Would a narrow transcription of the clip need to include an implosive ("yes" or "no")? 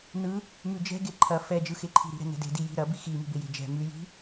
no